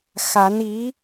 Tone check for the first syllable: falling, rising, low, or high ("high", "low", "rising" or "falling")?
rising